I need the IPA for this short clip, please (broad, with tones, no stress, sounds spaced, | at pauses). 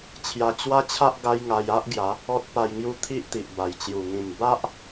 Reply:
t͡ɕʰ j a˧ t͡ɕ w a˦ t͡ɕʰ a˦ ʔ ɡ a˦ j ŋ a˧ j a˦ ʔ ɡ j a˨˦ | ɔ˦ t̚ p a˧ j ŋ j u˦ t̪ʰ i˦ ʔ t̪ i˨ ʔ b a˨˩ j t͡ɕ j u˨˩ ŋ ĩ˨˩ m b a˦ ʔ